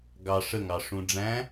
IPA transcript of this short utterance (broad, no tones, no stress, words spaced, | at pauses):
ɡɑ ʂəŋɑ ʂũɖ͡ʐæ̃